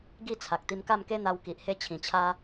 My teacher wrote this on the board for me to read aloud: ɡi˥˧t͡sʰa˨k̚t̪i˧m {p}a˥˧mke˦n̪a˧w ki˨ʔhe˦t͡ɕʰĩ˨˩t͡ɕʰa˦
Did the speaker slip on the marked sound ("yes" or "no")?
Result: yes